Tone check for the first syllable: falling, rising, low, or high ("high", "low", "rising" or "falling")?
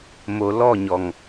low